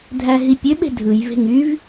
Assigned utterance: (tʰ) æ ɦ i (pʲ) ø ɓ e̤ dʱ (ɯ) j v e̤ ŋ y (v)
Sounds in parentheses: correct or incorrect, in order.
incorrect: dʱ, correct, correct, correct

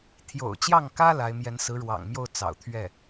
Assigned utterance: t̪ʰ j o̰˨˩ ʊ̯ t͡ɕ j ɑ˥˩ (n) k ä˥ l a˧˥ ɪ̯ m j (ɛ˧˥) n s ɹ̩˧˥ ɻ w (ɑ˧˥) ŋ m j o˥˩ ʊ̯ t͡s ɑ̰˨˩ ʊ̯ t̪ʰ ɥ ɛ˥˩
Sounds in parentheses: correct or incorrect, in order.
incorrect: ŋ, correct, incorrect: ɑ̰˨˩

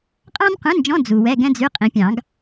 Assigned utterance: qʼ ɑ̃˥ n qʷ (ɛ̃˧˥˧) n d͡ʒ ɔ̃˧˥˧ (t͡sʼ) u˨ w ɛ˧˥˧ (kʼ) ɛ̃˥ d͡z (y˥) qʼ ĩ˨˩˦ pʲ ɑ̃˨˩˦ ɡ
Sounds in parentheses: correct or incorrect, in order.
correct, incorrect: d͡z, incorrect: ɡ, incorrect: y˧˥˧

